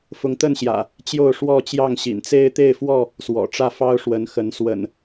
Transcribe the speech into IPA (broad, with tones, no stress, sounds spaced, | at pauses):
f ʊ˨˦ ŋ t̪ ə˥˨ n ɕ j ä̰˨˩ | t͡ɕ j o˥˨ ʊ̯ ʂ w ɔ˥˨ t͡ɕ j ɑ˥˨ ŋ ɕ ḭ˨˩ n t͡s e˦ ɪ̯ t̪ e˥˨ ɪ̯ f w ɔ˥˨ | s w ɔ̰˨˩ ʈ͡ʂ ä˥˨ f ɑ˦ ʊ̯ ʂ w ə˨˦ n x ə˨˦ n s w ə̰˨˩ n